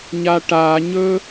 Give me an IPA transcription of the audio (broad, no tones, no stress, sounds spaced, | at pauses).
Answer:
ɲ a ʈ a ɲ ɵ